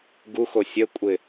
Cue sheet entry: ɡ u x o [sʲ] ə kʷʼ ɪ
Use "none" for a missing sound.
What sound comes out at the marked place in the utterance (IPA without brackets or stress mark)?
sʲ